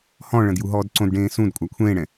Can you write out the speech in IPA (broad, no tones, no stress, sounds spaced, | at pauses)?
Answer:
h ɔ̃ ɭ ɐ̃ d j u ɦ ɔː d ǀ õ d ɖ ẽː s ũ d kʷʼ a kʷʰ ẽː ɽ ɛ̃